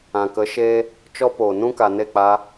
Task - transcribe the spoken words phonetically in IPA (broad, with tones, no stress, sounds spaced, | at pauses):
ã˨ k ə˨˦ ʃ eː˦ | t͡ʃ ɔ˦ p oː˨ n ũ˦ k a˨ n e˦˨ k͡p a˧